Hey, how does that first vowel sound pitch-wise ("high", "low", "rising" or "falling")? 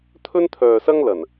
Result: high